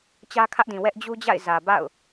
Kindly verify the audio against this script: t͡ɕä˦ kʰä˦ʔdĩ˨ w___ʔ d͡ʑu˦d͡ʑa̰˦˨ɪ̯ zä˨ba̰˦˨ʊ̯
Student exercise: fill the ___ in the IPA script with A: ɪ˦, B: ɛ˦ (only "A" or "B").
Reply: B